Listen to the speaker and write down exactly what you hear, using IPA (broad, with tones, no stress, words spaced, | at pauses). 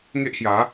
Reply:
ŋe˦ʔhja˨˦